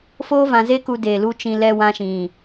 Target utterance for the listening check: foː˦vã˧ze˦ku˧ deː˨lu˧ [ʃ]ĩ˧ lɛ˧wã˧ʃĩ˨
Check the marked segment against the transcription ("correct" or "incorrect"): incorrect